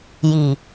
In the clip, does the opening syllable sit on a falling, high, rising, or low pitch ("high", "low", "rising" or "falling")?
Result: low